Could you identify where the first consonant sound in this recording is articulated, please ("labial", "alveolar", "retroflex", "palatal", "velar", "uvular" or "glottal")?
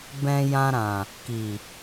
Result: labial